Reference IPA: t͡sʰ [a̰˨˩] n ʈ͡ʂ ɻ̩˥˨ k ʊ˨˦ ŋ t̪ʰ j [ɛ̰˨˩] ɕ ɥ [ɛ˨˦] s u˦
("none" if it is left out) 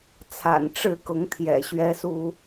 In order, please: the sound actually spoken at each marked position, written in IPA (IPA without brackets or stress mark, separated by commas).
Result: a̰˨˩, ɛ̰˨˩, ɛ˦